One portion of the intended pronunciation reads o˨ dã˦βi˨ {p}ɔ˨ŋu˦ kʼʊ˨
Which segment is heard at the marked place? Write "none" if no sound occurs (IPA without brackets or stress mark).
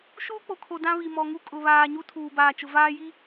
m